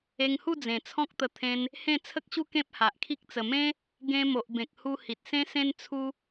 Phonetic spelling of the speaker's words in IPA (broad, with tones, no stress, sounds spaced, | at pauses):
e˧ ŋ h u˥˧ d͡z ẽ˨˩ t͡sʰ ɔ̃˦ k̚ t̪ ə˧ t̪ʰ ẽ˧ n | h ẽ˥˧ t͡sʰ ə˦ k̚ ɕ u˦ k ẽ˦ p̚ h a˨ ʔ kʰ i˦ k̚ t͡s ə˨˩ m ẽ˦ | ɡ ẽ˧ m o˨ ʔ b ẽ˨ k̚ h u˧ h i˨ t̚ s ẽ˦ s ẽ˦ n t͡sʰ u˦